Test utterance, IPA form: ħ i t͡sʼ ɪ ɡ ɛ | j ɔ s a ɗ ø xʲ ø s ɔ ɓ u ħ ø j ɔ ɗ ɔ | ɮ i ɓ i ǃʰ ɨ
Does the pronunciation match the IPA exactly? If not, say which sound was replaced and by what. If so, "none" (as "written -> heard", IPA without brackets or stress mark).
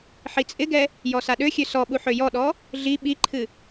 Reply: none